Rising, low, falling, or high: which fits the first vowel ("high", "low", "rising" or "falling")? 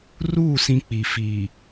falling